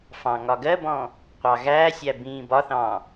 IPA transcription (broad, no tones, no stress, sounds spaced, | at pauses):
f ɑ̃ ŋ ɒ ɡ ɜ b ɔ̃ | qʷ ɑ ɣ æː sʲ æ b ĩː b ɒ θ ɑ̃